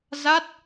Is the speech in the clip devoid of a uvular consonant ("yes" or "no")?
yes